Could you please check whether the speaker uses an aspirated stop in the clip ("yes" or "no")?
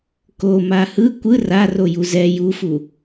no